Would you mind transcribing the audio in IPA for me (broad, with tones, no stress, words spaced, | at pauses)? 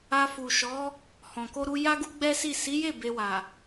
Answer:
a˧fu˨ʃɔ˨˦ | hɔ̃˨ko˧ɾu˧ ja˦ɡu˦ ɡ͡bɛ˦si˦˨ si˨˦je˦˨ be˧wa˨